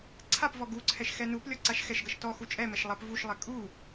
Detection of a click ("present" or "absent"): present